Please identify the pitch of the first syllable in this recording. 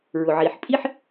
low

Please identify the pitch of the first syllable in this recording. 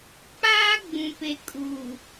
high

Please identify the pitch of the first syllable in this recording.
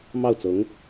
falling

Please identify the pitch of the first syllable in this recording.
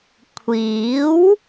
rising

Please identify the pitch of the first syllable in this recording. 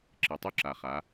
low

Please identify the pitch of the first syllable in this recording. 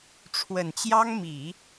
low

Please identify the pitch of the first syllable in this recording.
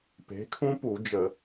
rising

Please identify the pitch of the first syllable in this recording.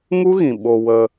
high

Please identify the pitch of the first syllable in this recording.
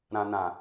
low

